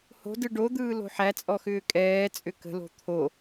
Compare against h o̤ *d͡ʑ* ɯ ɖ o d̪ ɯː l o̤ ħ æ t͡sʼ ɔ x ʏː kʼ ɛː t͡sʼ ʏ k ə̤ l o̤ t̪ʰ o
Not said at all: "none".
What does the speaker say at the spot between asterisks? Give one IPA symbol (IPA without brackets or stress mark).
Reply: d